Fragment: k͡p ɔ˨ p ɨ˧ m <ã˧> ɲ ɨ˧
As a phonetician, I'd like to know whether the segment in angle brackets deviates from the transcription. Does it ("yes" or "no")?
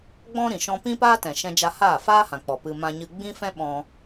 no